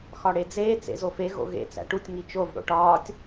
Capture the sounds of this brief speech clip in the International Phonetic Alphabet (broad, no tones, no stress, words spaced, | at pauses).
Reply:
xɒɽed͡zeː t͡sḛzofe ɣo̰ɣḛ t͡sæ̰ʈutʲ ŋit͡ʃov ɽo̰ʈɒːtʲ